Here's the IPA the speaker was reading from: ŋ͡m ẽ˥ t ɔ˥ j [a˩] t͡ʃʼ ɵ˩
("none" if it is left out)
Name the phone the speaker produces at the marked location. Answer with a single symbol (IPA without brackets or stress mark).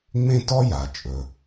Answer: a˩